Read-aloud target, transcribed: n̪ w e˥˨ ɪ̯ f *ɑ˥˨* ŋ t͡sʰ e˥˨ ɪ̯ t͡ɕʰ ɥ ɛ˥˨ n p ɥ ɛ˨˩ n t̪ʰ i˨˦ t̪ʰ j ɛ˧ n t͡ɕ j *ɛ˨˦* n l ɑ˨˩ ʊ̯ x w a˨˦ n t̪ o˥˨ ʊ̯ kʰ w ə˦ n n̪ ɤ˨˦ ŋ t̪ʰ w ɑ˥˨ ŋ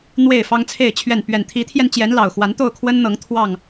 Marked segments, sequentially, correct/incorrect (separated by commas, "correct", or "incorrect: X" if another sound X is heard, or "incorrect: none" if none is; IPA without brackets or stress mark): incorrect: ɑ˦, correct